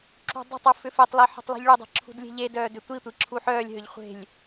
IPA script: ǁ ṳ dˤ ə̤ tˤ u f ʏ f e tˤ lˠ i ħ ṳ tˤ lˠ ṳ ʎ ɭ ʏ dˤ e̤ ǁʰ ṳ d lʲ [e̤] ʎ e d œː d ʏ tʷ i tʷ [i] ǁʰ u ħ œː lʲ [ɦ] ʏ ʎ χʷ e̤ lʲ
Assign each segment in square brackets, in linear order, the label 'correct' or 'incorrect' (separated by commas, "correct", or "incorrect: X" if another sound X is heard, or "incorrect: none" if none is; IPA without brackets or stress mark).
correct, correct, correct